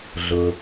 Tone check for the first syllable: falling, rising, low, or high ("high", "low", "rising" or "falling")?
low